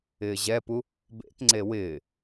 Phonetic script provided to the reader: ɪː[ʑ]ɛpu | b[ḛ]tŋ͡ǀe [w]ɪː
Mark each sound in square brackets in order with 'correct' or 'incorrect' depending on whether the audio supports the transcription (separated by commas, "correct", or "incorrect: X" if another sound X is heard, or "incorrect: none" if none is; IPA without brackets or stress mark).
correct, correct, correct